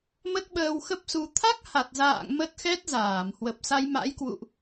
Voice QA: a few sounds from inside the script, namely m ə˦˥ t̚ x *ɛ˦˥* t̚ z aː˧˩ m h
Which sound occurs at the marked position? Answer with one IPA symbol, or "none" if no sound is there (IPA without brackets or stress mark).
ɛ˦˥